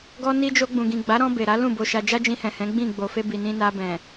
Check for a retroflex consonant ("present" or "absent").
absent